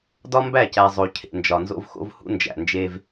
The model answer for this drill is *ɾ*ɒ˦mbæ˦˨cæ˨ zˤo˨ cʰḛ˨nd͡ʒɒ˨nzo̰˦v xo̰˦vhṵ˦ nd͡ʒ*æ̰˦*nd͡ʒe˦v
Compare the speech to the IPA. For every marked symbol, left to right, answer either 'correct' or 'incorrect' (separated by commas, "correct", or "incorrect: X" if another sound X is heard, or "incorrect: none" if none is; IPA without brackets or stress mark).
incorrect: d, incorrect: æ̰˨